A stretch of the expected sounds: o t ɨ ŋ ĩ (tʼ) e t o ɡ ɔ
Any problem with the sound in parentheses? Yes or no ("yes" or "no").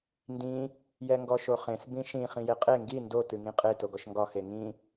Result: yes